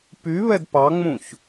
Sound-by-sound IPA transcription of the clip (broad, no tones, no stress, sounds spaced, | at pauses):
p y β ɛ d p ɑ ŋ͡m ũ ç